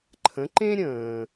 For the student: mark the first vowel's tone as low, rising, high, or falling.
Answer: rising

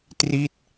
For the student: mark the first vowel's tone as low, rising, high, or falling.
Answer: falling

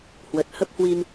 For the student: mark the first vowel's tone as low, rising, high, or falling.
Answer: low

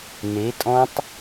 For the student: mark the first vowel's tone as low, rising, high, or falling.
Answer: rising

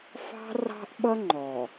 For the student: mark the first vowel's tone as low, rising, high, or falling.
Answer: high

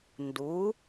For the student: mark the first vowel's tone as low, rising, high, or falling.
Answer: rising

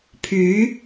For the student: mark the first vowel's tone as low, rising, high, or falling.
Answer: rising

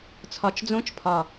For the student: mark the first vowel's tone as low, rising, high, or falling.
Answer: low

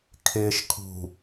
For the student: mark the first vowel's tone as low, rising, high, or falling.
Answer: low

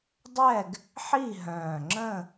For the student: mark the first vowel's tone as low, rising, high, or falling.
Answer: falling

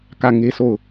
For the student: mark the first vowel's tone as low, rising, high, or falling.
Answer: falling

